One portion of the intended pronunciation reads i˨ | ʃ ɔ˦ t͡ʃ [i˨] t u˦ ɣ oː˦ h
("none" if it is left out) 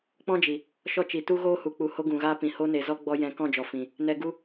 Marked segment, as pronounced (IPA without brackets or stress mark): i˨